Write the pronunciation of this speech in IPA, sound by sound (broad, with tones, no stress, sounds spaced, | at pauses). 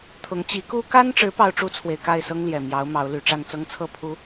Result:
t̪ʰ ʊ˨˦ ŋ t͡ɕ i˨˦ k u˦ k a˦ n ʈ͡ʂ ɻ̩˨˦ p ɑ˦ ʊ̯ ʈ͡ʂ u˦ t͡sʰ w e˨ ɪ̯ k a˥˨ ɪ̯ s ɤ˦ ŋ l j ɛ˨˩ m j ɑ˨˦ ʊ̯ m ɑ˨˦ ʊ̯ l y˨˩ ʈ͡ʂ a˥˨ n t͡s ɤ˦ ŋ t͡sʰ ɤ˥˨ pʰ u˨˦